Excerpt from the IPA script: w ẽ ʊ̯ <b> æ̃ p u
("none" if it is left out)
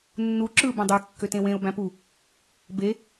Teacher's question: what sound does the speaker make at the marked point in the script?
b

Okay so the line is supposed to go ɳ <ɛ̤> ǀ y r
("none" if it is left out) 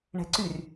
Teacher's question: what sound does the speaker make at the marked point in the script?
ɛ̤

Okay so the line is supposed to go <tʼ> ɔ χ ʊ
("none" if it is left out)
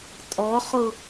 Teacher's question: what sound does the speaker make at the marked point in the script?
tʼ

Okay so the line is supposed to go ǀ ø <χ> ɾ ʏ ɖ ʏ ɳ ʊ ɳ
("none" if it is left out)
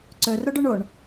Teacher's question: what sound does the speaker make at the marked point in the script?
r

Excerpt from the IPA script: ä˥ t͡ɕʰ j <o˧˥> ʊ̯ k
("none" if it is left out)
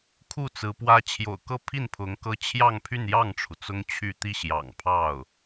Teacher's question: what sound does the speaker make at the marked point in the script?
o̰˨˩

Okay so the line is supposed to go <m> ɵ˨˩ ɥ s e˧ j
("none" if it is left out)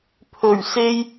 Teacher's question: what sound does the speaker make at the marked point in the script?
pʰ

